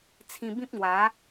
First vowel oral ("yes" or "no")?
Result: no